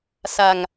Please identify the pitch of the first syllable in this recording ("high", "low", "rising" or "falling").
low